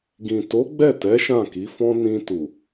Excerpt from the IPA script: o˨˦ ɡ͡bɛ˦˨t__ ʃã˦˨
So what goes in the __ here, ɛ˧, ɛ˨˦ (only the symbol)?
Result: ɛ˨˦